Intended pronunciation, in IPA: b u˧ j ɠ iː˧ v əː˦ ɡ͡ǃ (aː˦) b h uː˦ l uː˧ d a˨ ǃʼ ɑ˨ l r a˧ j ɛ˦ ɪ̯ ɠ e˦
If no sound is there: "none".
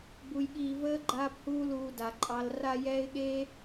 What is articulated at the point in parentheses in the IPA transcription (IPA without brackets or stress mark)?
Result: aː˦